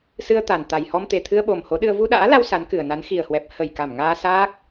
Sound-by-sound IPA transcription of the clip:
s ɨ˧ ə̯ t̪ a˨˩ n t̪ a˨˩ j h ɔ˧ m t̪ e˨˩ t̪ʰ ɨ˧ ə̯ ɓ o˨˩ m h o˨˦ ɗ ɨ˧ ə̯ v u˧ ɗ a̰ː˧˥ l a˧ w s a˨˦ n k ɨ˨˩ ə̯ n a˨˦ n x i˨˩ ə̯ h w ɛ˨˩ p̚ h ə˧˩ j k a˧˩ m ŋ aː˧ s aː˦˥ k̚

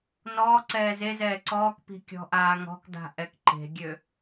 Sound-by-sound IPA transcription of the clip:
n ɔː ǀ ɛː z e z ɛː ǀ ɔː k p i̤ kʲ ɔ̤ ʔ aː ŋ ɔ̤ k d̪ a̤ ʔ ɛ k ǃ e̤ ɡʲ ø

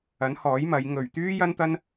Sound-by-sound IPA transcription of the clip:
ɐ˨˥ n h ɔː˨˥ j m ɐ˨˧ j ŋ ɵ˨˩ ɥ t̪ yː˥ j ɐ˥ n t̪ ɐ˥ n

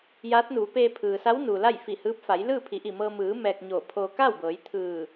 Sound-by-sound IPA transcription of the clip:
j aː˧˥ t̚ n uː˩˧ p eː˧ pʰ ɯː˩ s a˧˥ w n uː˩ l a˥˨ j f i˧˩ h ɯː˧˥ p̚ f a˩˧ j l ɯː˥˨ pʰ i˩˧ ʔ i˧˩ m ɤː˧ m ɯː˩˧ m ɛː˧ k̚ ɲ oː˧˩ pʰ oː˧ k a˥˨ w b ɤː˩˧ j t̪ʰ ɯː˧˩

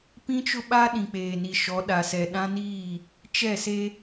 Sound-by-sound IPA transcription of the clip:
p ĩ˦ t͡ʃ ʊ˦ ɓ a˦ ɗ ĩ˨ k͡p eː˨ n i˨ ʃ ɔ˨˦ ɗ a˨ s ɛ˨ ɗ ã˦ n iː˦˨ | t͡ʃ ɛ˦˨ s e˦

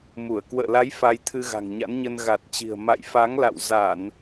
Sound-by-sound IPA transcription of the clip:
m u˧˩ ə̯ k w ə̰ː˧˨ l a˨˦ j f a˧ j t̪ʰ ɨ˧ ɣ a̤˨˩ ŋ ɲ a̰˧˥ n ɲ ə˧ n ɣ a˨˩ t̚ t͡ɕ i̤˨˩ ə̯ m a̰˧˨ j f a˨˦ ŋ l a̰˧˨ w z a˧˩˨ n

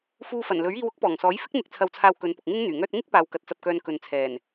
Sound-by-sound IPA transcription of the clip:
f uː˧ f ɐ˨˩ n l ɵ˨˥ ɥ iː˧ w ʊ˥ k̚ p ɔː˨˩ ŋ s ɔː˨˥ j f ɪ˥ k̚ n̪ ɪ˧ k̚ t͡sʰ ɐ˧ w t͡sʰ aː˧ w k ɵ˨˧ n p ʊ˨ k̚ ŋ ɪ˥ ŋ n̪ yː˨˩ ŋ œː˧ t̚ ŋ ɪ˥ k̚ p aː˧ w k ɐ˧ t̚ t͡s ɐ˧ p̚ k œː˧ n k ɵ˨ n t͡sʰ ɛː˨˩ n

